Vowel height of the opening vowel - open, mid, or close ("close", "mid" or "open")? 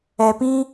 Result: mid